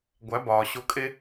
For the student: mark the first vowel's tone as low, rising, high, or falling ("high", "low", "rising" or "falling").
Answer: rising